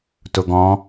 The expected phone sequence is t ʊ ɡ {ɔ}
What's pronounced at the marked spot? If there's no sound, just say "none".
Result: ɔ̃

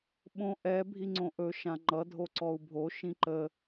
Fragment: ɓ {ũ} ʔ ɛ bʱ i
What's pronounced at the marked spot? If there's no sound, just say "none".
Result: õ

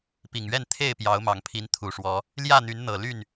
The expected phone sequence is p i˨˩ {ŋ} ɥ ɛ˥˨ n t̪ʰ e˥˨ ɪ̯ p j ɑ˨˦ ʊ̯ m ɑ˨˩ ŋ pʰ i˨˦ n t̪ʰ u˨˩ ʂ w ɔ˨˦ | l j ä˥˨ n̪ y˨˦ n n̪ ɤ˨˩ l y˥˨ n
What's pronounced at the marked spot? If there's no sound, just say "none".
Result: ŋ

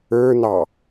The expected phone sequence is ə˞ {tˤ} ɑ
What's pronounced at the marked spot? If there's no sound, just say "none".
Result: n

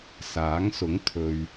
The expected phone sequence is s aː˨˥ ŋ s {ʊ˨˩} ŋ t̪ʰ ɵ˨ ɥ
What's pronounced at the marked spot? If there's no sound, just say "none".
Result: ʊ˨˥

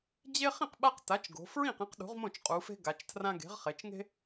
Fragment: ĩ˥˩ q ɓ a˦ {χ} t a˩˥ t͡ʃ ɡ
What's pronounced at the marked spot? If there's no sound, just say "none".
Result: q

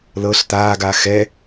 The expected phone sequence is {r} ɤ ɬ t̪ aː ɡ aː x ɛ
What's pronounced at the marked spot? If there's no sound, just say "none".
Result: l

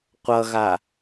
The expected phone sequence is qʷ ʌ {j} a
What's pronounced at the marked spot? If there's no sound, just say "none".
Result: ɣ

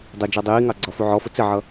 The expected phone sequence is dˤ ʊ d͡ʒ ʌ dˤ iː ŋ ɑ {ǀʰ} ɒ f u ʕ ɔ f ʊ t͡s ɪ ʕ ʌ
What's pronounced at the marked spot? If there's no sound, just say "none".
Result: ɡ͡ǀ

